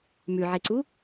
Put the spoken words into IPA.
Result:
mʉʕeǀu

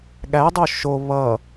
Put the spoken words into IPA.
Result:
ɠædˤo ʃo βʌ

